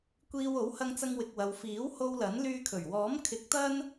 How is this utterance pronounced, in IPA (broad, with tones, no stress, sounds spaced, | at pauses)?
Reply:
kʷ iː˧ w o˨˥ w h ɐ˧ ŋ t͡s ɐ˧ ŋ w ɪ˨ k̚ w ɐ˨ w f iː˨˥ w h o˧ w l ɐ˨˥ n l yː˧ kʰ ɵ˨˩ ɥ w ɔː˨˥ m kʰ ɪ˨˥ k̚ t̪ ɐ˥ n